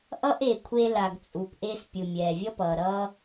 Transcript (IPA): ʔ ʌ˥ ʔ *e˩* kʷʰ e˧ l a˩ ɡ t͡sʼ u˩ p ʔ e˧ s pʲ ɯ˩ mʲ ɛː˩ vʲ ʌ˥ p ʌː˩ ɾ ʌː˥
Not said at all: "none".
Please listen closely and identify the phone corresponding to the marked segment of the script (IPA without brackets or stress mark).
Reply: e˩